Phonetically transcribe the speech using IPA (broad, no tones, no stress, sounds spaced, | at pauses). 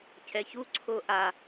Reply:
cʰ ɛ ç u ǀʰ o ʔ a